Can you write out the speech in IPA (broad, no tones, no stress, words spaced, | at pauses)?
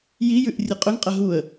jijʉʔ rʲɨqʼɵŋqʼɐ ɦuə̯